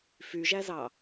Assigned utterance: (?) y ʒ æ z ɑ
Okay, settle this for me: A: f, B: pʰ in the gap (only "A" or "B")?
A